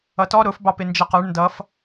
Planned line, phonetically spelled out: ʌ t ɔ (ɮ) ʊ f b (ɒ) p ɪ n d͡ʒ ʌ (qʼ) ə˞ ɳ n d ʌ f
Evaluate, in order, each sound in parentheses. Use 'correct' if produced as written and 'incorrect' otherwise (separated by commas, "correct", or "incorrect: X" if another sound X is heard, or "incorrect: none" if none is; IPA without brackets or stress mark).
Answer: incorrect: ɾ, incorrect: ɑ, incorrect: q